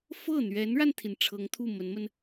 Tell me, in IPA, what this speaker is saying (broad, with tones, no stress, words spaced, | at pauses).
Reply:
fɤ˥˩n̪ɥɛ˧˥nɻa˧nt̪ʰi˩n ʈ͡ʂʰɤ˧˥ŋt̪ʰu˥˩mə˧˥nmə˧n